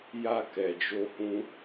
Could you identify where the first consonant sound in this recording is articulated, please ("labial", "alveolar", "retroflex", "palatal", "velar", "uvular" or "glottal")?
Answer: palatal